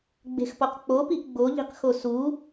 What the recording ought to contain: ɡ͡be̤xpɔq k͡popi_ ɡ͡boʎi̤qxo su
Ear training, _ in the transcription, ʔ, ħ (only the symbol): ʔ